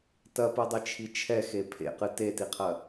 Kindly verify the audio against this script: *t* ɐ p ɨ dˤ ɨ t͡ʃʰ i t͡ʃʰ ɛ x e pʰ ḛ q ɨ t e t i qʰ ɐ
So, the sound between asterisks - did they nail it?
yes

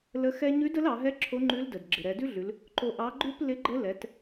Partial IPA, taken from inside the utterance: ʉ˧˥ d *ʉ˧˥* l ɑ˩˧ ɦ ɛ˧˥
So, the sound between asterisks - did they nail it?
no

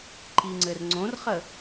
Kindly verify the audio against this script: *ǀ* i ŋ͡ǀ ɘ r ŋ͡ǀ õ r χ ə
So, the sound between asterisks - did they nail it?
no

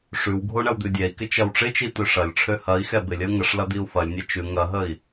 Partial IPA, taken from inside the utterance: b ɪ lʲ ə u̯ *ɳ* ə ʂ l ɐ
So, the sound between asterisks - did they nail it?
no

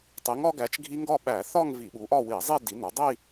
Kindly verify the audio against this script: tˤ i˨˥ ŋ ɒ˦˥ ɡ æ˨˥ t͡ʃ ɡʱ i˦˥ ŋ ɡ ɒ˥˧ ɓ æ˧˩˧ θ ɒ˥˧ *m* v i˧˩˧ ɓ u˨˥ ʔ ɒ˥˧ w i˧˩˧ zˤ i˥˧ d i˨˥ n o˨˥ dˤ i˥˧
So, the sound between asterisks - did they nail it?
no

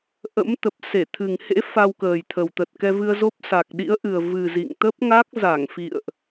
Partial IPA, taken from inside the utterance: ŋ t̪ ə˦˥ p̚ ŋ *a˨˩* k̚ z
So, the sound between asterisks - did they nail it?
no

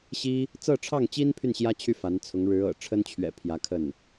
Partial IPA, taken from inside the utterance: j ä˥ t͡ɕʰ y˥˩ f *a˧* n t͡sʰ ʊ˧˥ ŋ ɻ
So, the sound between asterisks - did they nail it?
no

